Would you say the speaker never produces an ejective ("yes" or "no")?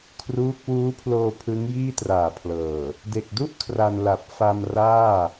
yes